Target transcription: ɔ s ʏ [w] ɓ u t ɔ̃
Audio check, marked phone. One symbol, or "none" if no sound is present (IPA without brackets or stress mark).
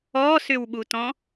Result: w